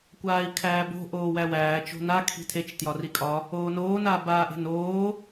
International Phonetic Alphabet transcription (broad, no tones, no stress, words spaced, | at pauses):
kʷaːi̯kʰæːbo̤ ʔoːwæwæː t͡ʃo̤na kʰi̤tʰet͡ʃ tjɒrikʼɒ | oːnoː naːbaːʔe̤noː